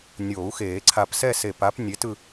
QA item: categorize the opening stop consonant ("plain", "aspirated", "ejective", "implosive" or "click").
click